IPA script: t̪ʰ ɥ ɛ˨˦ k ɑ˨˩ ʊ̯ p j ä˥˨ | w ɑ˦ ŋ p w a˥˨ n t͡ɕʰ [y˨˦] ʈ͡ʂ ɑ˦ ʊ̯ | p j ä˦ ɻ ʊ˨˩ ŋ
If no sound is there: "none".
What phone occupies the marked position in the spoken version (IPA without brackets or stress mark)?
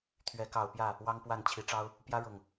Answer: i˨˦